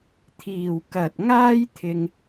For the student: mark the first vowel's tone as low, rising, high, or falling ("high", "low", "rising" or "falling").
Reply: low